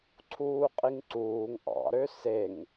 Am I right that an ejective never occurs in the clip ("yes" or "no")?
no